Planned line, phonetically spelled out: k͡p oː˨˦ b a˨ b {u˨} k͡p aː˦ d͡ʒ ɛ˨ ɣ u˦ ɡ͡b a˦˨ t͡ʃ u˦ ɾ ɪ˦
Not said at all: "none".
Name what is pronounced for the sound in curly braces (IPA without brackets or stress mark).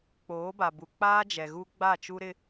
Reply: u˨